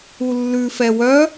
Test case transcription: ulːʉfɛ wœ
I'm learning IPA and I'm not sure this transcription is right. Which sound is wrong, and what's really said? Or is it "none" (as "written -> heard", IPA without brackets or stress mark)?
none